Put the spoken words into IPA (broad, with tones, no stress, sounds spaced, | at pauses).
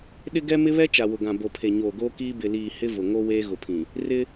ɗ ɪ˦ ɡ ɛ˦ m ɪ˦ β ɛ˦ t͡ʃ a˨ w ʊ˨ ɡ ã˨ b o˨ pʰ e˨ ɲ oː˨ ɡ oː˦ k iː˦ b ɪ˨ l iː˨ h ɪ˦ v ʊ˨ ŋ o˦ w eː˦ ɣ ʊ˨ pʰ ĩ˨ | r ɪ˦